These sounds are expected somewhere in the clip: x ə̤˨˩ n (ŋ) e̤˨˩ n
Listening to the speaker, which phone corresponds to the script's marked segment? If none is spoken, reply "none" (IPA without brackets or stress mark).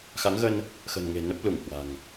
ŋ